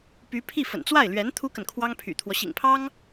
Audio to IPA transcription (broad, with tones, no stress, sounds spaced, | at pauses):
p y˧˥ pʰ i˥˩ f ə̰˨˩ n t͡s w a˥˩ ɪ̯ l ɥ ɛ˧˥ n t̪ʰ u˥ k ə˨ n kʰ w ɑ˥ ŋ pʰ y̰˨˩ t̪ʰ w ɔ˦ ɕ ḭ˨˩ ŋ pʰ ɑ˥ ŋ